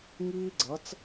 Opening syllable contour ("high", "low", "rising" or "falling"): high